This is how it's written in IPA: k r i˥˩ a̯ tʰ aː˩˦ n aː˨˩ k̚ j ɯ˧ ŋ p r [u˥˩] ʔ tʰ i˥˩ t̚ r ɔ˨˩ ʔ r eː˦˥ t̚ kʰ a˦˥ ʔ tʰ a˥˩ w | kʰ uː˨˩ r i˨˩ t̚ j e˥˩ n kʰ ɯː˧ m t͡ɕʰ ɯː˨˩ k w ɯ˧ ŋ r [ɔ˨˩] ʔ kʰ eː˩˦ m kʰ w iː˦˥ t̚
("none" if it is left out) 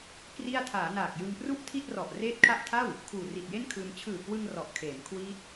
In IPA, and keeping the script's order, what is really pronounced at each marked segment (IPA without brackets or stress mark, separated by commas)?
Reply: u˥˩, ɔ˨˩